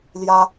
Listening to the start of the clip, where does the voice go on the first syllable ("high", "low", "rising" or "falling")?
high